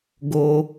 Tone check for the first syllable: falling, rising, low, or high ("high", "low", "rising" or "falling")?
high